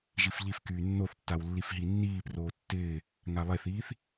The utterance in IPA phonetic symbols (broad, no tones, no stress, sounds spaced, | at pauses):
ʒ i f ʎ i f k yː nː o θ tː a w lː i f ɦ i nː iː p r oː tː ɪː | ŋ a lˠ e θ iː θ